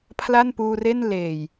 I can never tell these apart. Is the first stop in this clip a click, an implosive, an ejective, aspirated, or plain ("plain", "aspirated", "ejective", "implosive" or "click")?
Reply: aspirated